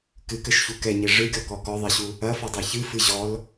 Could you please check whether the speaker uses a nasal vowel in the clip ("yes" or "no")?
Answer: no